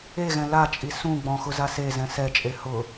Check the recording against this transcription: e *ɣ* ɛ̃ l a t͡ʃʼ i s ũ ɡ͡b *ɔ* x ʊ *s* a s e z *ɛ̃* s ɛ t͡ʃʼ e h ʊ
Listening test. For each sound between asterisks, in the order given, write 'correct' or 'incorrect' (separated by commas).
correct, incorrect, incorrect, correct